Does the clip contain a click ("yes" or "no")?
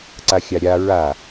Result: yes